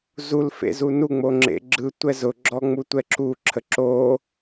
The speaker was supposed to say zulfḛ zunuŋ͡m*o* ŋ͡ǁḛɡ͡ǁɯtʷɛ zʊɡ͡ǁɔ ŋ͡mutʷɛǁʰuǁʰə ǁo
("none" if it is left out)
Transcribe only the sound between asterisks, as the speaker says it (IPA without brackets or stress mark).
o